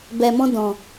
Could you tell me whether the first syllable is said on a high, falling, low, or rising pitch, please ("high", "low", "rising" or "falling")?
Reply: low